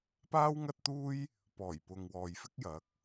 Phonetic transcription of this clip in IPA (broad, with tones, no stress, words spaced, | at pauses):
paː˥wŋɐ˥t̚t̪uː˥j | pɔː˨˩jpʊ˨ŋ wɔː˨jfɪ˥k̚ jɐ˨˥k̚